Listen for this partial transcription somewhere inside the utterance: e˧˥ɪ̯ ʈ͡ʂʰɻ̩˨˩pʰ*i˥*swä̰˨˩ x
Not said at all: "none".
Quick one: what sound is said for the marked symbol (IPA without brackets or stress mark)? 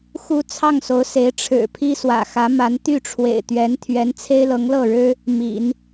i˥